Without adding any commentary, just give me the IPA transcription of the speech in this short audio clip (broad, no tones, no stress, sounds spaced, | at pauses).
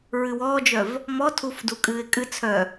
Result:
ɹ ɨ w ɔː d͡ʒ œ v | m ɔ tʰ u f d u kʼ ɨː ɪ̯ kʼ ɨ t͡sʰ œ